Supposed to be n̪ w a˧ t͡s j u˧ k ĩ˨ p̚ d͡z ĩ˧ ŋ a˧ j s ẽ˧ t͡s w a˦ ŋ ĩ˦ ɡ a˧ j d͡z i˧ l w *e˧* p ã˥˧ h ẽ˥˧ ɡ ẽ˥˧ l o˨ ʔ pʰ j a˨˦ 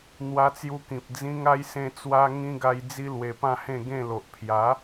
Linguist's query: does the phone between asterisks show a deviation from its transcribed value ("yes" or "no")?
no